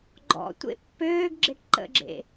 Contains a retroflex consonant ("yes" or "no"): yes